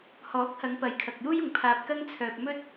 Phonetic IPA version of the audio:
h ɔː˨˥ k̚ h ɐ˨˧ ŋ p ɐ˨˧ j kʰ ɐ˨ k̚ j uː˥ j ʊ˨ ŋ pʰ aː˨ p̚ k ɐ˧ ŋ t͡sʰ œː˨ p̚ m ɵ˥ t̚

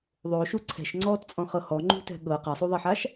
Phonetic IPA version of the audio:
ðˤ o ʃ u ǀʰ ɛ̤ ʃ ŋ͡ǀ ɔː t t͡sʼ ɔ̃ χ ɤ h ɔ ŋ͡ǃ ṳ t ɛ̤ ɠ ɤ q a sˤ u ðˤ i ħ a ʃ

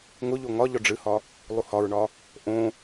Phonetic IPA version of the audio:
ŋ ʊ ʎ o ŋ ɒ ʎ ɔ ɖ͡ʐ ɨ h ɒ | lˠ u h ɒ ɹ ɳ ɒ | ʔ õ

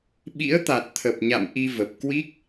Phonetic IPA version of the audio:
ɓ ḭ˧˥ ə̯ t̪ a˨˩ t̚ t̪ʰ ə˨˩ p̚ ɲ a̰˧˨ m ʔ i˧ v ə˨˩ p̚ k w i˦˥ k̚

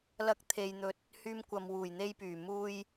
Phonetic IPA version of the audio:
l ɐ˧ k̚ t̪ʰ e˨ j n̪ ɵ˨ t̚ | h yː˧ m kʷ ɐ˨ m w uː˨˩ j n̪ e˧ j p yː˨˩ m uː˧ j

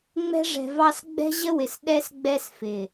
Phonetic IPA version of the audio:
ŋ͡m ɛ̤˧ ʐ ɛ̤˨ v ɑ˧ s ɡ͡b ɛ̤˧ ʑ ə˧ w ɪ˨ s ɗ ɛ˧ s ɡ͡b ɛ˧ s f ɪ˨

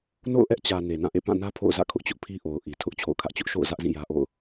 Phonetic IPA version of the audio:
n o̰˦˨ ʊ̯ ʔ ɛ˦ ʔ t͡ɕ ä˨ n e˨ n ã˦˨ ʔ ḛ˦˨ p ã˦˨ n ä˦ pʰ o̰˦˨ ʊ̯ z ä̰˦˨ kʰ ʊ˦ ʔ t͡ɕ ʊ˦ ʔ pʰ i˦ ʔ o˨ ʊ̯ ʔ i˨ tʰ ʊ˦ ʔ t͡ɕʰ o̰˦˨ ʊ̯ kʰ ä˦ ʔ t͡ɕ ʊ˦ ʔ ʃ o̰˦˨ ʊ̯ z ä˦ ʔ z ĩ˦˨ j ä˦ ʔ o̰˦˨ ʊ̯

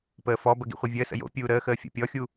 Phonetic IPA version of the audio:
p əː f ɔ b ə ɡ ḭ χʷ i vʲ əː s ə̰ j o̰ pʲ uː ɾ əː x əː fʲ o̰ pʲ ɔ xʲ u

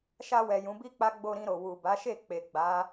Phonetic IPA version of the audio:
ʃ a˧ w ɛ˨ j ũ˨˦ b i˦ k͡p a˦ ɡ͡b o˧ ɾ ĩ˧ ɾ o˨ w u˨ b a˨˦ ʃ e˦˨ k͡p e˨ ɡ͡b a˨˦

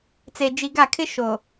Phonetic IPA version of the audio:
t͡s e˨ d͡ʒ i˨ ɡ a˦˨ kʰ ɪ˦ ʃ o˨

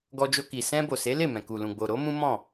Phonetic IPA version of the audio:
ɡ ɔ˧ d͡ʒ o˧ k i˨ s ɛ̃˧ b o˨ s e˨˦ l e˦˨ m ɛ̃˨ k u˨ l ũ˨ ɡ͡b o˨ ɾ o˨˦ m ũ˦ m ɔ̃˦˨

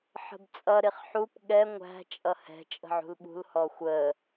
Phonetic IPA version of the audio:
ħ ə̤ b t͡sʼ ʌ ɾ ɪ χ ħ u p ɠ ɛ ŋʷ æ̤ t͡ʃʼ ʌ h ɛ̤ t͡ʃʼ ə̤ ʕ ṳ l ɓ ṳ l h ɔ xʷ ə

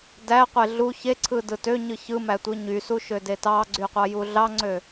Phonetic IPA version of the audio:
d æ qʷ e ɮ u ç e ǀʰ ɯ d ɯ t ø ɲ ɯ ç ɯ m æ tʷ ɯ ɲ y s u ʃ ø d e t ɑ ɡ͡ǀ y qʷ ɑ j u ɮ ɑ ŋ͡ǀ ø

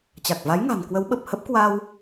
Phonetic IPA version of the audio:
t͡ɕ a˨˩ k̚ v a˨˦ j ŋ a̤˨˩ n k w ə˨˦ w ɓ ə˨˩ p̚ h ə˦˥ p̚ k w a˧ w

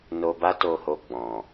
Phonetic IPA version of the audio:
n o˧ b a˦ t o˧ h o˧ ɡ͡b ɔ̃˨

